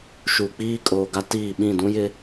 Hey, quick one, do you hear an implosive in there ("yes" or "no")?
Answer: yes